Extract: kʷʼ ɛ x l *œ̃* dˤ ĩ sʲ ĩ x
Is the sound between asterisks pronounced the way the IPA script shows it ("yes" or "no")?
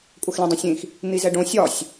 no